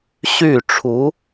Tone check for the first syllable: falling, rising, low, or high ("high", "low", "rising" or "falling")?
falling